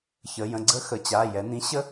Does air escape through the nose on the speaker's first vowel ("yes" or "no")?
no